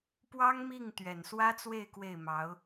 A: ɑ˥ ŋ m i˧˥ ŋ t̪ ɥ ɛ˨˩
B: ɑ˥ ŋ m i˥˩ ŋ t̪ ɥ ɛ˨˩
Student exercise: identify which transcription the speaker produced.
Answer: B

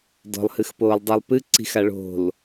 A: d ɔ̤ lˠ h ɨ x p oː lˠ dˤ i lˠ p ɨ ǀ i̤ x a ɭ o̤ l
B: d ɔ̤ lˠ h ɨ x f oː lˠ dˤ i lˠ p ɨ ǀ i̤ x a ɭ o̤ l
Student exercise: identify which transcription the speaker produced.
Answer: A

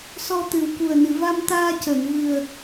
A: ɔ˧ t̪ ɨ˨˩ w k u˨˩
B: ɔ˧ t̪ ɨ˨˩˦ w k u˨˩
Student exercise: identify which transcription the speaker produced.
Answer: A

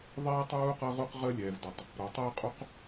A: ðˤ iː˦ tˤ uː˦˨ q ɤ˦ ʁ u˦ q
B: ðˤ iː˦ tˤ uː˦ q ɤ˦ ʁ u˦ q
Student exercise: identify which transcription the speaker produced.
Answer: B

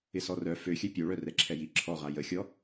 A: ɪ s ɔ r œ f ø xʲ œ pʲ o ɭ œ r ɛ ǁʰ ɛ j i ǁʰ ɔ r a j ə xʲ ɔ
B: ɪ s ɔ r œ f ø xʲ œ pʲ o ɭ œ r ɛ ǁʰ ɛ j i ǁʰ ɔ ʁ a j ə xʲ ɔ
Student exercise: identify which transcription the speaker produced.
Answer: B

